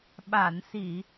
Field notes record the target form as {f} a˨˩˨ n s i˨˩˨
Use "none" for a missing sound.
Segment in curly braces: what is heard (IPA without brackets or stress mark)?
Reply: ɓ